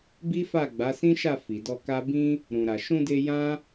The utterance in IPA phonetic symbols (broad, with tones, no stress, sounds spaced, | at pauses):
b i˦ f a˦˨ ɡ͡b a˨˦ s ĩ˦ ʃ a˦˨ f i˨ d ɔ˧ k a˦ b ĩ˦ | ɾ ũ˨ ɾ a˨ ʃ ũ˧ d e˧ j ã˦